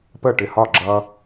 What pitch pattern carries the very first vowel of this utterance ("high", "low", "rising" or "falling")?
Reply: falling